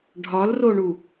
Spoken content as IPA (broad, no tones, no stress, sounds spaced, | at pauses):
ɖʱ ɒ l r o ɳ u